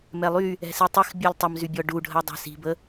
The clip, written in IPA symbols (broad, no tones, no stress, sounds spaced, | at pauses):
m ɛ lˠ y | ɛ̤ s i tˤ ɪ x bʲ ɜ lʲ tˤ ə m z y bʲ ɔ ɖ u ɖʱ ɜ dˤ ɛ̤ s i̤ b ə